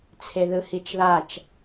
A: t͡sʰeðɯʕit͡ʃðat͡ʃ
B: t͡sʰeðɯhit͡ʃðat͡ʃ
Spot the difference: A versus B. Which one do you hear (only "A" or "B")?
B